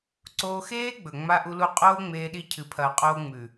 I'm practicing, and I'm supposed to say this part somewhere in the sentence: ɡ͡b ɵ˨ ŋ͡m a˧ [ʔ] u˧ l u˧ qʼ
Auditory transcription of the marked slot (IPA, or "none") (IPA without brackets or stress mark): ʔ